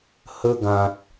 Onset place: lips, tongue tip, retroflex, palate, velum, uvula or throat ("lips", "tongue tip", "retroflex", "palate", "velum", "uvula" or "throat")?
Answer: throat